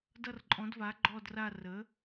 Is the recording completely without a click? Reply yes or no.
no